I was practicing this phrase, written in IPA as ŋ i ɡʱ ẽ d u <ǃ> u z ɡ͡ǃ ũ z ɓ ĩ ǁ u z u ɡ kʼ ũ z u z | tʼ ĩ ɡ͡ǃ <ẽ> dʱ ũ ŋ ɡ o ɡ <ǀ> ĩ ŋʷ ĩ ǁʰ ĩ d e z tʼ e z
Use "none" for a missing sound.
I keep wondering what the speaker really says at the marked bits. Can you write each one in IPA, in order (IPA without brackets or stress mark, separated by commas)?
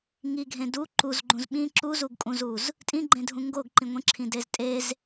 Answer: ǃ, ẽ, ǃ